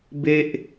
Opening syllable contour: high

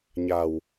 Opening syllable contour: low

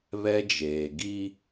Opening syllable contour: high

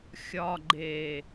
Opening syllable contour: low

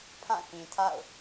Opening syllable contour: falling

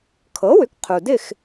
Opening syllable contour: rising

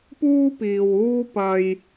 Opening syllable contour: high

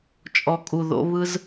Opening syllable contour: low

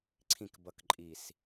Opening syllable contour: falling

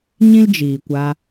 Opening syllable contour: high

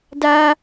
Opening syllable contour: high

